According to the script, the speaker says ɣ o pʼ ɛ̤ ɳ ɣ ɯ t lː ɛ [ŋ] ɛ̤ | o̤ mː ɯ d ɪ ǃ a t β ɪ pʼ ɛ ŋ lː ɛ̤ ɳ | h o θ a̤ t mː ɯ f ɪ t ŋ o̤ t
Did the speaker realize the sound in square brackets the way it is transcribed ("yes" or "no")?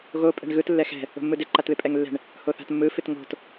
no